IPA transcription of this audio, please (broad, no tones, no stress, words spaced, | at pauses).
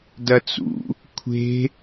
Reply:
dɐt͡sṵ | kʷʰe̤